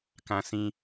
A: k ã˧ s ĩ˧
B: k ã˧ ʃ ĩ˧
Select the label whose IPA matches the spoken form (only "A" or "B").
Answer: A